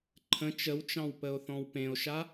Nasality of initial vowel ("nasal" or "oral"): nasal